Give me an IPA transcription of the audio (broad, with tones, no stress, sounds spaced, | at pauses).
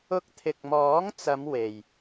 ʊ˧ k̚ t̪ʰ ɪ˨ k̚ m ɔː˨˥ ŋ t͡s ɐ˨˧ m w e˨ j